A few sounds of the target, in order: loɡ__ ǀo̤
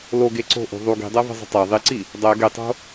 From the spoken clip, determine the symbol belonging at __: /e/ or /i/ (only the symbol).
e